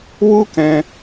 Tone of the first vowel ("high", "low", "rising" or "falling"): high